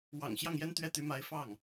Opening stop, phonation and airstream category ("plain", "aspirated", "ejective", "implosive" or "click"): plain